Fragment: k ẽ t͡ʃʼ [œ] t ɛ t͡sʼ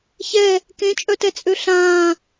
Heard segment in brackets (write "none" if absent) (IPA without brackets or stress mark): œ